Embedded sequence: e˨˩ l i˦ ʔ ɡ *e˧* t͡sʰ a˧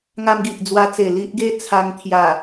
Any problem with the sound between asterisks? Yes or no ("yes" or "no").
yes